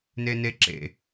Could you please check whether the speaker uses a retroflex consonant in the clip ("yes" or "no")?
no